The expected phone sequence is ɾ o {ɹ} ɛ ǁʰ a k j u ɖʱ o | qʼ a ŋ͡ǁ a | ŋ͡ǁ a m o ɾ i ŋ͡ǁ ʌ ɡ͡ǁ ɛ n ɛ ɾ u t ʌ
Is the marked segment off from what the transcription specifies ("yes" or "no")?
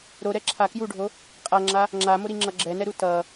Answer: yes